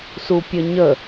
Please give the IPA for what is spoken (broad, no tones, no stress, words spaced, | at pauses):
supʲəɲə